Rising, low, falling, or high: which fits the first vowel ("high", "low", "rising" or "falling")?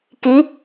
rising